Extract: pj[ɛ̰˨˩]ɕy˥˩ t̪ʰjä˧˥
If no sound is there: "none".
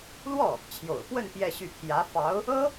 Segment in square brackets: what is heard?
ɛ˥˧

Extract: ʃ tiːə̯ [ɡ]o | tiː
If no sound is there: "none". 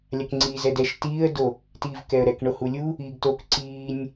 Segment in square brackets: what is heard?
d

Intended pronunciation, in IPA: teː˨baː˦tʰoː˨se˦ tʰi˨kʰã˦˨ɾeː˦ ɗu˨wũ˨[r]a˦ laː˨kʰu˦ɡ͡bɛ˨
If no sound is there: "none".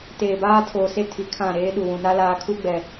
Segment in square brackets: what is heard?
n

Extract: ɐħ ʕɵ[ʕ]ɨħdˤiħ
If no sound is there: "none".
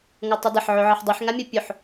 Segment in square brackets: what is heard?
ʕ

